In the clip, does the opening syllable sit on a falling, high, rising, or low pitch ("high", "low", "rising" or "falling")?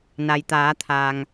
low